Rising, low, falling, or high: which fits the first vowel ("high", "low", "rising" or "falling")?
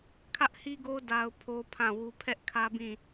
high